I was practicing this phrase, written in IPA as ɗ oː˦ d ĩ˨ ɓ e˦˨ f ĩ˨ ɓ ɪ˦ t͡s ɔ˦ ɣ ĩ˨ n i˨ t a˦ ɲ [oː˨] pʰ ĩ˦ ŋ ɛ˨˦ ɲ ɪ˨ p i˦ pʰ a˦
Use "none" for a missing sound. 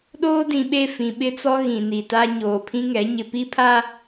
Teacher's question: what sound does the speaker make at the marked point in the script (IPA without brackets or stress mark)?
oː˨